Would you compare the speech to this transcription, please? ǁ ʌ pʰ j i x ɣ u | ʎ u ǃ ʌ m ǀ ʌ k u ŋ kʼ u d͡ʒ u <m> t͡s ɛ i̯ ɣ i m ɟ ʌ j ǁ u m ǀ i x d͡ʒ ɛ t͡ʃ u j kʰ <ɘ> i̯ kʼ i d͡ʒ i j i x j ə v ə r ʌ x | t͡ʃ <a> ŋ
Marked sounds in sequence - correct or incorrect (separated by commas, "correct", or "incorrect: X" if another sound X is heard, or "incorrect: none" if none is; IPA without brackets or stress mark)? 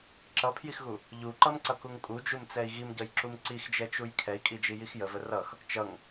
correct, incorrect: ɛ, incorrect: ʌ